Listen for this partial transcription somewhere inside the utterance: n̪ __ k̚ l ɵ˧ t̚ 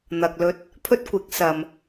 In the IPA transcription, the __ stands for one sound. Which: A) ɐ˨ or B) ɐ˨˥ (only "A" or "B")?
A